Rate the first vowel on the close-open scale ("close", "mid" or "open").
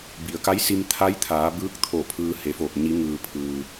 close